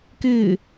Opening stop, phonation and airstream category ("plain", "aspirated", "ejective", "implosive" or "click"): plain